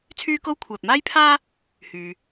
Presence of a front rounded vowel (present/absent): present